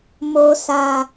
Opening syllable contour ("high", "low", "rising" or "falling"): low